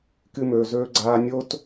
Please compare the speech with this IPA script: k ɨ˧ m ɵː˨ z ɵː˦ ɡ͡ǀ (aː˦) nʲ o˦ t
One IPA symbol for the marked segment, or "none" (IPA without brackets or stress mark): aː˦